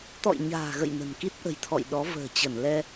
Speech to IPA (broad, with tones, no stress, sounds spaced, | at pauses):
t̪ ɔ̰˧˨ j ɲ a̤ː˨˩ ɣ ə̰˧˨ j n ə̤˨˩ n k i˦˥ t̚ ʔ ə̤˨˩ j t̪ʰ ɔ̰˧˨ j ɗ ɔ˨˦ v ə̤ː˨˩ t͡ɕ ə˧˩ n l ɛ˧